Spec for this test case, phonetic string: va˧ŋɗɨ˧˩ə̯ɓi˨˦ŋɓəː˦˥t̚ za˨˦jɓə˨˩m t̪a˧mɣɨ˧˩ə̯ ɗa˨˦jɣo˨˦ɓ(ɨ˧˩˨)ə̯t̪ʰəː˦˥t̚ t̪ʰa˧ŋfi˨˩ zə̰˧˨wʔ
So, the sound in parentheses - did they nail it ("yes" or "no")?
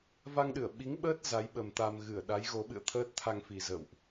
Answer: no